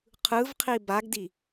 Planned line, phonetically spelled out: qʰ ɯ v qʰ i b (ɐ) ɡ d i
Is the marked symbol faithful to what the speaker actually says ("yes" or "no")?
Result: no